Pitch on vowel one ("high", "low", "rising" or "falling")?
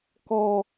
high